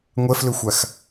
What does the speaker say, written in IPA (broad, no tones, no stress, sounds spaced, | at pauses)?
ŋʷ ɛ f l ʏ xʷ a x